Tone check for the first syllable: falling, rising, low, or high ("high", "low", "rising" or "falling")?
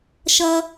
high